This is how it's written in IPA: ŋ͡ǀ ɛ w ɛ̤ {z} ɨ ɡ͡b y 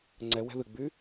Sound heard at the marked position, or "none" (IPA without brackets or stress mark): ð